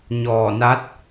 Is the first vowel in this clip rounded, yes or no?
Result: yes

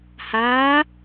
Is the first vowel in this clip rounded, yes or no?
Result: no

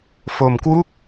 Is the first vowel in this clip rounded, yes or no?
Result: yes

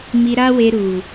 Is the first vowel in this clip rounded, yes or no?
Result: no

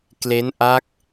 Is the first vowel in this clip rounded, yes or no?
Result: no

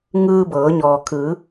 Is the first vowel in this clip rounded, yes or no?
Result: no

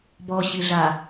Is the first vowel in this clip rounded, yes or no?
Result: yes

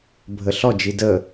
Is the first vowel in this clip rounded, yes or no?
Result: no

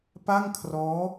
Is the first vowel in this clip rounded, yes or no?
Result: no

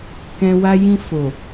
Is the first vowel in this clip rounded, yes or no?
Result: no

